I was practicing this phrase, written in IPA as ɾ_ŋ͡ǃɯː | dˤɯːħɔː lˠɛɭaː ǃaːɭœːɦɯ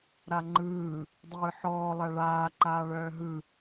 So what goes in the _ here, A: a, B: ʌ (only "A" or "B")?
A